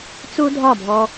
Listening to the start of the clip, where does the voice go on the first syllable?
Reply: high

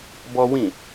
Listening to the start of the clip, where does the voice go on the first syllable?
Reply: high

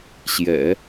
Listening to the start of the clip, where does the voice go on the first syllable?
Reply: low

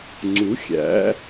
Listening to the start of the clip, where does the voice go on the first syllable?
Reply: rising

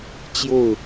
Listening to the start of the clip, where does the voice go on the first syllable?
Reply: falling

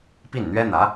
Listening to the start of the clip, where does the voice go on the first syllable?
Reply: falling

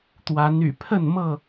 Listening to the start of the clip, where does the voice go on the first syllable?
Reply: rising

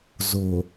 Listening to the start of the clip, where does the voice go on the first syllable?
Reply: low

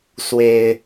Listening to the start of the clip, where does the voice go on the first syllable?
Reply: low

